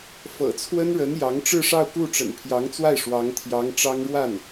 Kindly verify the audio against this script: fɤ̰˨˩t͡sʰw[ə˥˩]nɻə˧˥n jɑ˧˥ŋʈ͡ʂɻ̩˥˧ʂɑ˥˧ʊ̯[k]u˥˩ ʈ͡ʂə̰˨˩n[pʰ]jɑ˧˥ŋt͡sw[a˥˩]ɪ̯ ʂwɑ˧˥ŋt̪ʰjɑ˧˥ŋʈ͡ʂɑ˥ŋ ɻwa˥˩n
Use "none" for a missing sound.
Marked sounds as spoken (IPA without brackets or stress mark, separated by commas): ə˥, k, pʰ, a˥˩